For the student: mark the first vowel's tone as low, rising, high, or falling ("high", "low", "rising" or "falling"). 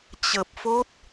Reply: low